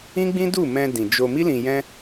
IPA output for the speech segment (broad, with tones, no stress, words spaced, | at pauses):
ĩ˦ɡ͡bĩ˦du˦˨ mɛ̃˧ dĩ˨d͡ʒo˧ mi˦lĩ˧ jɛ̃˦